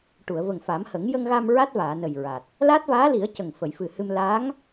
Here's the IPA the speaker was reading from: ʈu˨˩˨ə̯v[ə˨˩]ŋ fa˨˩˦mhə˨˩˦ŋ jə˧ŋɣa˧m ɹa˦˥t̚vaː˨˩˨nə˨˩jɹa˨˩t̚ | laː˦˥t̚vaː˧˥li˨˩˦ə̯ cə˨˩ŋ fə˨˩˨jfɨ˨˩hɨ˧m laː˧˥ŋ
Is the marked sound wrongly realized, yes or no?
no